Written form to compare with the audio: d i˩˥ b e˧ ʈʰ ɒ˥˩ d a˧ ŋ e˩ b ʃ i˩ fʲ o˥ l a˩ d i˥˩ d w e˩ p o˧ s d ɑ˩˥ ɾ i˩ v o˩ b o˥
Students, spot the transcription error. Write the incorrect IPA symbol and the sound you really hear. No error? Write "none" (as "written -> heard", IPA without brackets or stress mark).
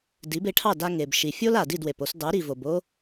ɒ˥˩ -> ɑ˥˩